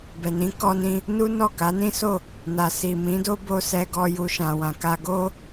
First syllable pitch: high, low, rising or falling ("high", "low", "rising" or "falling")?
low